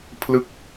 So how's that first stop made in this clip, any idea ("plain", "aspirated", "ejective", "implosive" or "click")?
aspirated